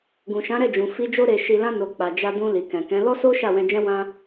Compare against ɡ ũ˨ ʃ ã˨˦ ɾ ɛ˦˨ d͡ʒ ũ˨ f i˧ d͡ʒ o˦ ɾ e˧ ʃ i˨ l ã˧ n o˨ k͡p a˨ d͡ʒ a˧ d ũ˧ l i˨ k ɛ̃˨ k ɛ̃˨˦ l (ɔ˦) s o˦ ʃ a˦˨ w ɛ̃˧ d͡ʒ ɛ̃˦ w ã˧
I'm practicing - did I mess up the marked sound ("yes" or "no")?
no